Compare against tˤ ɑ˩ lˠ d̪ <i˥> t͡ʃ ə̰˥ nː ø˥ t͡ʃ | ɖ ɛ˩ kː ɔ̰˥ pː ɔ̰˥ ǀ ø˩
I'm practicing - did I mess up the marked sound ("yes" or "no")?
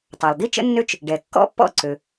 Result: no